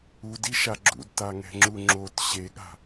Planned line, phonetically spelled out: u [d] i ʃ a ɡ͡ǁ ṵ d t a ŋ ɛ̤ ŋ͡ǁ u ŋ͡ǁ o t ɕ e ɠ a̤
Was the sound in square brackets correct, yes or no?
yes